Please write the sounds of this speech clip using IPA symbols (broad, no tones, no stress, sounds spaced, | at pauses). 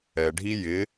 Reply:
ɛ ɖʱ i j ɪ